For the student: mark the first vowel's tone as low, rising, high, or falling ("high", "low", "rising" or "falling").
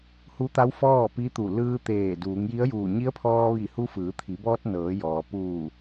rising